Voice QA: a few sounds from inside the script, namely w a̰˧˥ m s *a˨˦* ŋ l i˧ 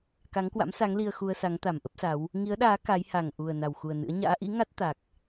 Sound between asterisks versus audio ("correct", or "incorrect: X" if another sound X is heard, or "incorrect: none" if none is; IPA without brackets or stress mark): correct